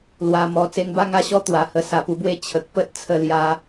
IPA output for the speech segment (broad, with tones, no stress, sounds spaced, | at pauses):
l w a˧ m ɔ˧ t͡s e˧ ŋ b a˥˧ ŋ a˥˧ ɕ ɔ˦ t̪ w a˨˩ h ə˧ s a˨˩ p u˧ b w e˦ t͡ɕʰ ə˨ k̚ p ə˦ t̚ t͡sʰ ə˧ l j a˧